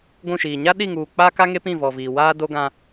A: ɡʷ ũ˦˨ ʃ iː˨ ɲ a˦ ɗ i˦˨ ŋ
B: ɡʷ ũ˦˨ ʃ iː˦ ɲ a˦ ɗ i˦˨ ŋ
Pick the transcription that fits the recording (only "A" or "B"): A